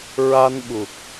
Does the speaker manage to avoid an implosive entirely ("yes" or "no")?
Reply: no